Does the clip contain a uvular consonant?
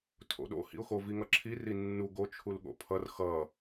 no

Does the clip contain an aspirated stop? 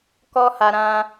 no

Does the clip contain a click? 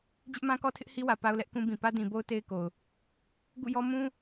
no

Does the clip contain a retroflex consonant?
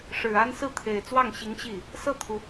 yes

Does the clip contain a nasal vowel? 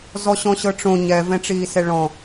yes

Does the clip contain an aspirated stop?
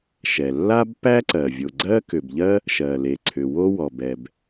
yes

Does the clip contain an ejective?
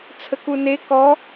no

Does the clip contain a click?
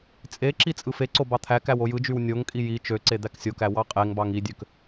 yes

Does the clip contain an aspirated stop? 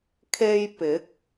yes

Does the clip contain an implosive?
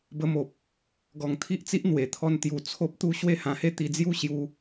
no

